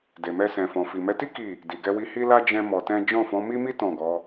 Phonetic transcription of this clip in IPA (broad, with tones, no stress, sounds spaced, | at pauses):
d e˨ m ɛ˧ s ɛ̃˨ f ɔ̃˨ f i˨ m ɛ˨˦ t i˦ k i˦˨ | d i˨ ɡ ɛ˧ w i˧ h i˦ l a˦ d͡ʒ ɛ̃˦ m ɔ˧ t ɛ̃˦ d͡ʒ ɔ̃˦˨ f ɔ̃˨˦ m i˦ m i˦ t ɔ̃˦˨ ɡ ɔ˨˦